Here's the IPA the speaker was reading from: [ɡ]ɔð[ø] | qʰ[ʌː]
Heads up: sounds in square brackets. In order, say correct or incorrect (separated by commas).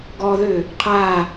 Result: correct, correct, incorrect